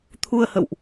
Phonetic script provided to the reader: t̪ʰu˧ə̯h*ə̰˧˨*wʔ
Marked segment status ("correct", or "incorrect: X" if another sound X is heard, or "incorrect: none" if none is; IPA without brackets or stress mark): correct